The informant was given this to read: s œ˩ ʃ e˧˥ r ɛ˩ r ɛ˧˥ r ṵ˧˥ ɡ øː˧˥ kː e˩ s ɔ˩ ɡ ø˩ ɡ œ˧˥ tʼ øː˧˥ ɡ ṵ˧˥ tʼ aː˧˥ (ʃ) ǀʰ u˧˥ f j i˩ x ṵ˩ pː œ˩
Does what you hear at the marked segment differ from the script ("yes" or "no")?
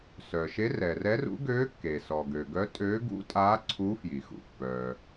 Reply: yes